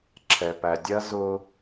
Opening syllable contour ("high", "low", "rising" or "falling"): low